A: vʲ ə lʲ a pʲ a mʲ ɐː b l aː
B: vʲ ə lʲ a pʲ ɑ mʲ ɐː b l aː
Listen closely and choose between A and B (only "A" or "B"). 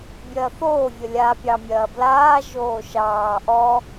B